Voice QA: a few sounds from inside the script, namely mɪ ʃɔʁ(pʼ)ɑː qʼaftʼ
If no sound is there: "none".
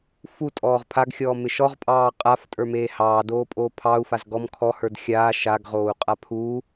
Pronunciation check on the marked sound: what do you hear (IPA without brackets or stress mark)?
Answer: pʼ